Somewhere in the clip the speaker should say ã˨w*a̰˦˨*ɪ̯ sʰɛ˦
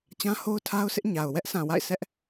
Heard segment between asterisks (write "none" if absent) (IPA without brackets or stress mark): a̰˦˨